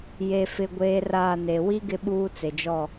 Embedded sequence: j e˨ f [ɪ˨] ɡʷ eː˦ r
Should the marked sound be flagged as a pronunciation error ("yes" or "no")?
no